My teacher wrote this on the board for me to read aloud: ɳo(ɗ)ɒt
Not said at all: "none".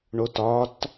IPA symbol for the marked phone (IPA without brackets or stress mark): t